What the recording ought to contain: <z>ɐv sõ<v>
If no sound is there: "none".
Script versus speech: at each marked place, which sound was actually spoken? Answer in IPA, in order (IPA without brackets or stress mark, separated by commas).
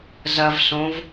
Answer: z, v